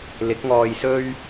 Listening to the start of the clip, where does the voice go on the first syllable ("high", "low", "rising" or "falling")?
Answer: rising